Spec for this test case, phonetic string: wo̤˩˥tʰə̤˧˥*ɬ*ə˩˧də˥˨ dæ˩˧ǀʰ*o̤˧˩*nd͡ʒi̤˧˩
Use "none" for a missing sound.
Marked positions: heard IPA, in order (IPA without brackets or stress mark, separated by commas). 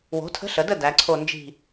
ɬ, o˧˩